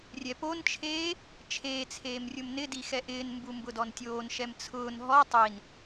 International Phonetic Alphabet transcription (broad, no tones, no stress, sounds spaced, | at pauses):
rʲ ɛ p o n t͡ʃʰ eː | t͡ʃʰ eː t͡sʰ eː m rʲ ʊ m n ɪ d i x ɛ ʔ ɪː n m b u m b ʊ d ɔ n tʲ oː n ʃ ɛ m t͡sʰ ʊː n ɦ ɔ tˤ i n